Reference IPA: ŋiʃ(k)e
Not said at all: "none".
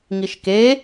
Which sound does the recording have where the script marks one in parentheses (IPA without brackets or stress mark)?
k